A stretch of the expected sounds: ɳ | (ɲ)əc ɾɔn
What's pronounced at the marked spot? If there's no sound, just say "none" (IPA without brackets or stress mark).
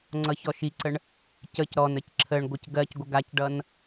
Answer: c